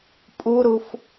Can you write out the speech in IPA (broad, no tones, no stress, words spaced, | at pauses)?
pʼuɾuf